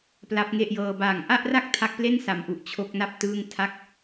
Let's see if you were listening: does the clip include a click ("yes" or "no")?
no